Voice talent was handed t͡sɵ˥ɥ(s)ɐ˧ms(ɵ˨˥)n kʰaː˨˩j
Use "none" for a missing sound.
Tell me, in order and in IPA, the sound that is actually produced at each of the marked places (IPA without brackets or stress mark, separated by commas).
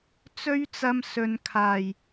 t͡s, ɵ˨